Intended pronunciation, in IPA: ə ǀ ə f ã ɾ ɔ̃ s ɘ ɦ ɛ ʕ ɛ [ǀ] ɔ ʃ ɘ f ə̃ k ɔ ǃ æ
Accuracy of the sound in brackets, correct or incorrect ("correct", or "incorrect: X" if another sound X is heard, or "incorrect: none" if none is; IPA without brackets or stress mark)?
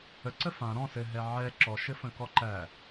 incorrect: ǁ